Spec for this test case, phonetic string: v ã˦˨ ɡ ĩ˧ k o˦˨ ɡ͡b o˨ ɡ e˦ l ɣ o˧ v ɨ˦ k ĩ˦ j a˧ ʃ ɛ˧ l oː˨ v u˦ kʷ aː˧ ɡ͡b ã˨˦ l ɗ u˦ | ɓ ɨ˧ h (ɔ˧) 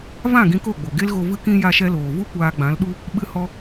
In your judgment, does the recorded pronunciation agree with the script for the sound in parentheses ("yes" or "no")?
yes